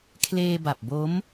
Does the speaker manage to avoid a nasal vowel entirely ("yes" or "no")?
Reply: yes